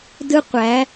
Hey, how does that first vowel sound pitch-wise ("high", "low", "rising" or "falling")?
high